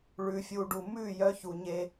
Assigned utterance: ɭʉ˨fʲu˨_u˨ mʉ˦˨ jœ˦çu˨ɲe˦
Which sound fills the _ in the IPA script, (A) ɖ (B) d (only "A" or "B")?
A